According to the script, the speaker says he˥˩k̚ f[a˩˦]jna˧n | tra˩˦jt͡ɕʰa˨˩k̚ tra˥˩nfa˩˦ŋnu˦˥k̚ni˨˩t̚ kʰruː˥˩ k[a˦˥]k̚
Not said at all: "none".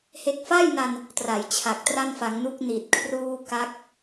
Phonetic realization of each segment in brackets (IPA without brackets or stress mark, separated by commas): a˥˩, a˦˥